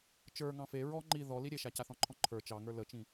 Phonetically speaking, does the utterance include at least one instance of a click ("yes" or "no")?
yes